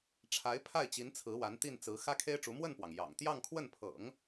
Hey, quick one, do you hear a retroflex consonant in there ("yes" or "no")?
yes